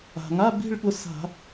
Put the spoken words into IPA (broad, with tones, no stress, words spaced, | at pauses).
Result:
a̤˩ŋa˧˥˧bi̤˥˧ɭ ɠʊ˧sa̤˧˩˧